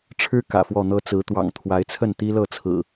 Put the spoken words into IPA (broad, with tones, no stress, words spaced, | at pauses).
ʈ͡ʂʰɻ̩˦ kä̰˨˩fwɔ˥˨n̪ɤ˦ t͡sɹ̩˨˦t̪wɑ̰˨˩ŋt̪ʰwa˨˦ɪ̯t͡sʰə˥˨n t̪i˦lɤ˥˨t͡sʰɹ̩˨˩